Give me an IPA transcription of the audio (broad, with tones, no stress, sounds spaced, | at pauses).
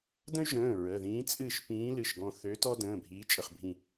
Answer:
d ə̃˥ y̯ ʒ ə̃ː˩˧˩ ɹ ə˩˧˩ ð ĩː˧˥ t͡sʼ ɨ˦˨ ʃ p ĩː˧˥ l ɨ˩˧˩ ʃ ɡ ɔ̃˦˨ θ ø˧˥ t ɔ˥ d ə̃ː˩˧˩ bʱ iː˧˥ t͡ʃʼ ə˦˨ χ bʱ ĩ˦˨